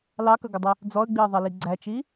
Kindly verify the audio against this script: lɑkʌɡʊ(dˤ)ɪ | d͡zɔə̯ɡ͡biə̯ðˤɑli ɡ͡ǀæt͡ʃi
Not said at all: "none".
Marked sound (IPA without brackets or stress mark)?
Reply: dˤ